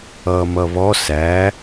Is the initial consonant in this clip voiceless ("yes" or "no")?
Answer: no